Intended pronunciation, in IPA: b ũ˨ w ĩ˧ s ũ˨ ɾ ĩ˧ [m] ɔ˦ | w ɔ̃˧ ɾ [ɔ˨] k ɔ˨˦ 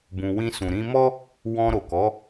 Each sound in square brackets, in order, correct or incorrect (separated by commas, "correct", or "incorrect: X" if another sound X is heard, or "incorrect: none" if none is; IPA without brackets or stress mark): correct, incorrect: o˨